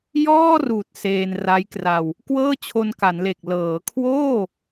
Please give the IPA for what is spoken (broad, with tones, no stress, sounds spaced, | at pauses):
j ɔː˥˩ r uː˨˩ t̚ s eː˧ n r a˦˥ j k r a˧ w | k w ɤː˥˩ t͡ɕʰ o˧ n k a˩˦ n l e˨˩ k̚ l ɤː˩˦ kʰ w oː˥˩